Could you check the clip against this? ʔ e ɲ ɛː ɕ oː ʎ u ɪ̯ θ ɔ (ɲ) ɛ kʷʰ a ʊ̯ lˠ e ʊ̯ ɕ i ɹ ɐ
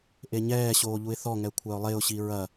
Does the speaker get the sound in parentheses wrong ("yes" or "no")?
yes